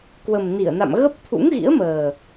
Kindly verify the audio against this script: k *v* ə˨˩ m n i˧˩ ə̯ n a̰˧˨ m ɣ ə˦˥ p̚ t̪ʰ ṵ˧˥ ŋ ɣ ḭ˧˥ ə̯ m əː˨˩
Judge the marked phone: incorrect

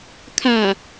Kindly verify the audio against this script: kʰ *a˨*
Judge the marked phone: correct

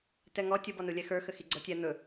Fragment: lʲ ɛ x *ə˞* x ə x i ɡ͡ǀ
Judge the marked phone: correct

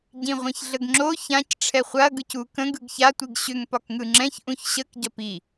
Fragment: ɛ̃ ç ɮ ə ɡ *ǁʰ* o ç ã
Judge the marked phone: incorrect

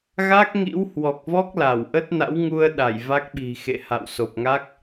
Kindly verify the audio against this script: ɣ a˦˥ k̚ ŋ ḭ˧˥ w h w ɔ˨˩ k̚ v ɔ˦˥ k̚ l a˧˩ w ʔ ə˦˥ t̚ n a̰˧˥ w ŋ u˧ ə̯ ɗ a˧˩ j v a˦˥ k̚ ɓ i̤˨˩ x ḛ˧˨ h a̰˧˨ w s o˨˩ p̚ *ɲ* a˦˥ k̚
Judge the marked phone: incorrect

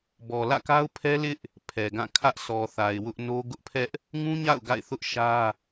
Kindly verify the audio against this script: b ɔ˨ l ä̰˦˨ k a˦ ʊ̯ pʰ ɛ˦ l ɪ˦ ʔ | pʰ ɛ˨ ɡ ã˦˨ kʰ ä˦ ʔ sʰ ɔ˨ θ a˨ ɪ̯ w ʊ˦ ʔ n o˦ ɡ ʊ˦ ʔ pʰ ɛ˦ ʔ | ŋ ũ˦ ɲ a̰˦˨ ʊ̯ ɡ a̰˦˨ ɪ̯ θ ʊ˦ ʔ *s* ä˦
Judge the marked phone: incorrect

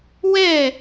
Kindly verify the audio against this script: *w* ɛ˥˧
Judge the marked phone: correct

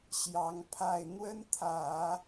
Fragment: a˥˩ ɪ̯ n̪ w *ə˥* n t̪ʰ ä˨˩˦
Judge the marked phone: correct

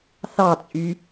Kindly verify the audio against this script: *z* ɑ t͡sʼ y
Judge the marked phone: incorrect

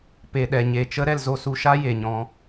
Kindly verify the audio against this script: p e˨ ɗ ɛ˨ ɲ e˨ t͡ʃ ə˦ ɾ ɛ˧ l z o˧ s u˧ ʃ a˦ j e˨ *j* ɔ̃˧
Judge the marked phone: incorrect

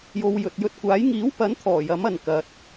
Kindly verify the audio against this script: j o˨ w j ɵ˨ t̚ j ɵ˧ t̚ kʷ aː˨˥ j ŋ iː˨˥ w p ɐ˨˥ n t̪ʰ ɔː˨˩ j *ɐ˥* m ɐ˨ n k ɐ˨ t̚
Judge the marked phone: incorrect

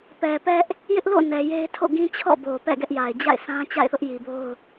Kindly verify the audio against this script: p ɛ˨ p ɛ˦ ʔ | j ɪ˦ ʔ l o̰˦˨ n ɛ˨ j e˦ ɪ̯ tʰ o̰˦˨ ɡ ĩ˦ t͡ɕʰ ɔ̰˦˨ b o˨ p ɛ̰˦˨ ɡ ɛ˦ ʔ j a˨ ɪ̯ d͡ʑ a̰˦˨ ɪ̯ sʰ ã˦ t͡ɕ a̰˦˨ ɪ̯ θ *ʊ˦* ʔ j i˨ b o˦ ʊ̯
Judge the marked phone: correct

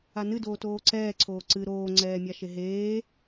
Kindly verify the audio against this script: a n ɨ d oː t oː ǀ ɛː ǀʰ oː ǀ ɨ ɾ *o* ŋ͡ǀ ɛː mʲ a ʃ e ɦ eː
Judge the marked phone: incorrect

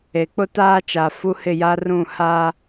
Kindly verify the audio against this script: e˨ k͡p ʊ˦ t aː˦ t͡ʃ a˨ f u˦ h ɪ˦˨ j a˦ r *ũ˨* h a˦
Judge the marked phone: incorrect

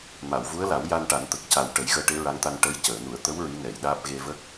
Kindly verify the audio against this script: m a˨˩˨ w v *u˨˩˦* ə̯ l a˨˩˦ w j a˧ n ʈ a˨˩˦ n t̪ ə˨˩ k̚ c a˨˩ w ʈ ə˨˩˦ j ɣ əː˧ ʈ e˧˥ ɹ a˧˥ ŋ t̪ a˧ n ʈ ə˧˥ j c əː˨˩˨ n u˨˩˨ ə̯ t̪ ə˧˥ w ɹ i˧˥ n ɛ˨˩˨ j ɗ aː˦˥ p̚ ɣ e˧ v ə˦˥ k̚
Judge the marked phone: incorrect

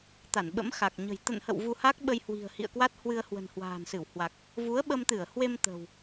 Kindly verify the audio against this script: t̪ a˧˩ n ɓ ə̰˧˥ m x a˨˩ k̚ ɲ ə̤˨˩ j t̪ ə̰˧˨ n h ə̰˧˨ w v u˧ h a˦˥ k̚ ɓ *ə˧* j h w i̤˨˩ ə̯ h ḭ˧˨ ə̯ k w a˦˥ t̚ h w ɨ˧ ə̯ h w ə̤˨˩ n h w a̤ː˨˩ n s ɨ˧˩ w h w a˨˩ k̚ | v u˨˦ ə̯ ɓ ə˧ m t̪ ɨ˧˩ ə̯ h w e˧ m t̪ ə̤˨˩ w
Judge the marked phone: correct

